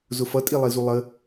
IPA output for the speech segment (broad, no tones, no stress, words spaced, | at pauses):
zʊfʌ tʼilˠizulˠə